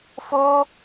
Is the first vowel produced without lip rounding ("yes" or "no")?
no